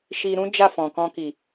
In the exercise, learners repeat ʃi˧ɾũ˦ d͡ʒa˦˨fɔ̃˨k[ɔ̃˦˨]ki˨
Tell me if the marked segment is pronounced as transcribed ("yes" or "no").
no